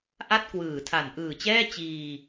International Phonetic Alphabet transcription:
ʔ a˥˩ t̚ k w ɯː˨˩ tʰ a˨˩ n ʔ ɯː˨˩ t͡ɕ ɛː˥˩ t͡ɕ iː˧

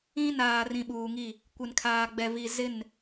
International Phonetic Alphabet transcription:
ĩ˦ n aː˨ r ĩ˨ ɓ uː˨ ŋ i˦˨ | kʷ ɪ˨ n kʰ aː˨ ɡ͡b ɛ˨ v i˨ z ɪ˦˨ n

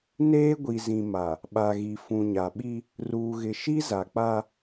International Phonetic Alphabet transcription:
n eː˦ ɡʷ i˨ z ĩ˨ m a˨ | ɓ a˨ ɣ i˨ f ũ˨ ɲ a˨ ɓ i˦ | r uː˨ ɣ ɪ˨ ʃ i˦ z a˨ k͡p a˦

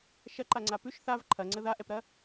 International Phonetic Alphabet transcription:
ʃ ɐ ǃ a ŋ͡ǀ a p ʉ ʃ θ a v ǃʰ ɐ ŋ͡ǀ ə ð a ʔ ɛ p ɾ ɐ

